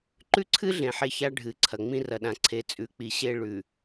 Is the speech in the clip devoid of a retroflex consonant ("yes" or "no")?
no